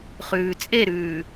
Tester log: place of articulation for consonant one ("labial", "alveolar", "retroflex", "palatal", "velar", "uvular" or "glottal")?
uvular